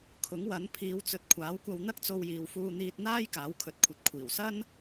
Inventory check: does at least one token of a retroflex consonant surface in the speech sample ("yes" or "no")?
no